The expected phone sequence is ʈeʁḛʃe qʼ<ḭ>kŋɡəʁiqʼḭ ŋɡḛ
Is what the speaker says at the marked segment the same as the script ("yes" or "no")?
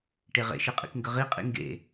yes